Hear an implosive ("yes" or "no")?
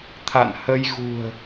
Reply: no